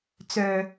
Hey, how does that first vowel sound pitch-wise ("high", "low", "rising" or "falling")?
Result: low